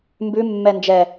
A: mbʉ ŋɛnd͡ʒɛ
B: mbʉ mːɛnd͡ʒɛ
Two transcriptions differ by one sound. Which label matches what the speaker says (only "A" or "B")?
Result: B